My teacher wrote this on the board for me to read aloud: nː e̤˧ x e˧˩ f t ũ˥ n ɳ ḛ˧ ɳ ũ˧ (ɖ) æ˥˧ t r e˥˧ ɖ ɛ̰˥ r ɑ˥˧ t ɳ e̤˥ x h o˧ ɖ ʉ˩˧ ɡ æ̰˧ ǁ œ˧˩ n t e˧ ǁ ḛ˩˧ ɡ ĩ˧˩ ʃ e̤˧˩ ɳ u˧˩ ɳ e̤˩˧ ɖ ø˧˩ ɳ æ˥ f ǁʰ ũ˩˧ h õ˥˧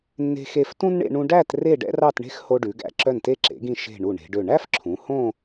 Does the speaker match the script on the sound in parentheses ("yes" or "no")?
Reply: yes